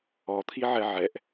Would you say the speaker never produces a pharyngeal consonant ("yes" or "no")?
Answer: no